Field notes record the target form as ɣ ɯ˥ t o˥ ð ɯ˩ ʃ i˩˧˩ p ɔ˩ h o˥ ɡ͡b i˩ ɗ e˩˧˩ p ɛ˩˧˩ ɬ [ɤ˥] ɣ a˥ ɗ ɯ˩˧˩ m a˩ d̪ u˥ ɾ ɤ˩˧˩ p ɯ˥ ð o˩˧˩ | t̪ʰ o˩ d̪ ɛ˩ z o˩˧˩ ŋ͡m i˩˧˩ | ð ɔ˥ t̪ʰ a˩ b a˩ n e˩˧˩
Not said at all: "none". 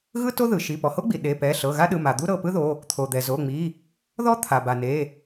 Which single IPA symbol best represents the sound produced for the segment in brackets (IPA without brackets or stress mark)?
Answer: ɤ˩˧˩